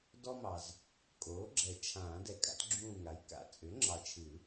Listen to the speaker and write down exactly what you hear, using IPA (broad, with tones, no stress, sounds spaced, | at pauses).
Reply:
d ɔ˥ m ɑ˨ z | kʼ oː˩˥ ɡ͡ǁ ɛ˨˩˦ t͡ʃʰ ãː˨˩˦ d ɛ˨ kʼ a̰˩˥ t ɡ͡ǁ ũː˦˨ ŋ a˩˥ j k a̰˨˩˦ t͡sʼ ʏ˩˥ ŋ͡ǁ ɑ˨ t͡ʃʰ ɨ˨˩˦